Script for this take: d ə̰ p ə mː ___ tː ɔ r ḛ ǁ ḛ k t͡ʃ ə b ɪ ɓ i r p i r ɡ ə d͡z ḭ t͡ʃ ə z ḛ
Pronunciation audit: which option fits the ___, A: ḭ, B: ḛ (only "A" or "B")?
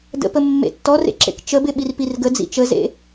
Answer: B